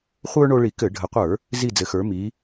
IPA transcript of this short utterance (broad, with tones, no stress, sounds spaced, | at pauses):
χʷ ə˞˦ ɳ o˦ ɭ i˧˩˧ k ɘ˧˩˧ ɖʱ ə˨˦ qʷ ə˞˧˩˧ | z i˦˨ d͡z ɘ˨˦ x ə˞˨˦ m i˨˦